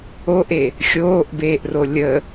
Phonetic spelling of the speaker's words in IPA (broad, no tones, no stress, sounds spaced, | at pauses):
o ʔ e | xʲ oː ʔ b eː ʔ r o lʲ ə